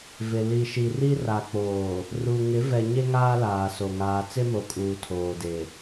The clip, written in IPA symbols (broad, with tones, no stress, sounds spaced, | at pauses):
v ɪ˨ l i˨ ʃ i˨ r i˦ r a˨ k͡p oː˨ | r u˨ ŋ ɪ˨˦ v ɛ˨ ɲ e˦ ŋ aː˦ l aː˨ s o˨ ŋ aː˨ t͡s e˦ m o˨ kʼ uː˨ tʰ oː˨ d e˨